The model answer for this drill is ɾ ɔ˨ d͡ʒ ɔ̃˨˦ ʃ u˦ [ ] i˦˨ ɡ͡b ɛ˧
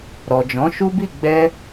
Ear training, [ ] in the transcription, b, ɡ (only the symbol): b